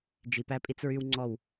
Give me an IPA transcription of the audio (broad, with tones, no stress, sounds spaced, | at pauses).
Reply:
d͡ʒ i˨ p æ˦ pʼ i˦ t͡s ɹ y˦ w ŋ͡ǀ ɔ˦˨ w